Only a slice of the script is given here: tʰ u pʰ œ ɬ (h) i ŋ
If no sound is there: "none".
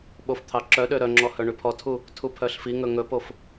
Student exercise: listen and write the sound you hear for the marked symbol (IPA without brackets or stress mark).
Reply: f